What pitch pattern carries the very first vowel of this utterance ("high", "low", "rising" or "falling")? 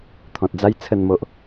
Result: low